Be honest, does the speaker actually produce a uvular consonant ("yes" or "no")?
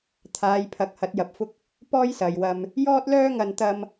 no